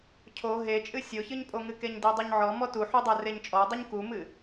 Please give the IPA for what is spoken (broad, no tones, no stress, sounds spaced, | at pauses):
cʰ o ɦ e t͡ʃʼ ɨ sʲ o ç ɨ ɲ pʼ o ŋ ɨ k e ɲ d e dˤ u ɲ ʕ ɔ m ɔ t u ħ u dˤ ɛ r e ɲ t͡ʃʼ ɔ dˤ ɨ ɲ k u m ɨ